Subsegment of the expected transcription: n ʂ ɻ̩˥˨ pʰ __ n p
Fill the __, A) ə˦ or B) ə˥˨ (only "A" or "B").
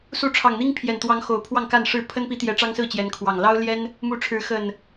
A